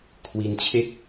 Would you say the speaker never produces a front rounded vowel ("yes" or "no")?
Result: yes